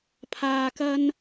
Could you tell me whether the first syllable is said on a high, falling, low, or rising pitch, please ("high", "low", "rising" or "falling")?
low